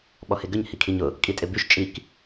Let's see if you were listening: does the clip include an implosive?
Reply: yes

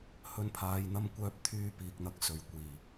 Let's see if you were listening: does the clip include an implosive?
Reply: no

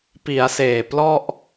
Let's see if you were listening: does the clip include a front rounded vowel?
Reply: no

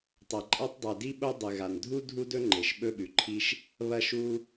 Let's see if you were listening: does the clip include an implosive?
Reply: yes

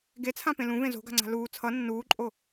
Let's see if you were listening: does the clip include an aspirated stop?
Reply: yes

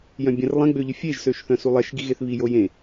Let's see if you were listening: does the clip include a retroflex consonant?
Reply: no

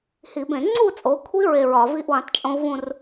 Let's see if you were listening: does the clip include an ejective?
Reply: yes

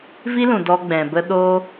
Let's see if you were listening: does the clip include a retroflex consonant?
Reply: no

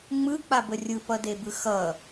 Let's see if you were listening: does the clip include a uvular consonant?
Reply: no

